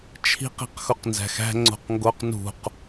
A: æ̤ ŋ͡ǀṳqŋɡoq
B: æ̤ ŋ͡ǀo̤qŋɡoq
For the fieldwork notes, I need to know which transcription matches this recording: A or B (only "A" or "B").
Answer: B